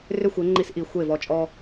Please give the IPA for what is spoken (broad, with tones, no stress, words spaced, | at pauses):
rʏ˦xʷe˨˦ ŋ͡ǃi˦sʔi˧ xʷe˦˨vɔ˧t͡ʃʼɔ˦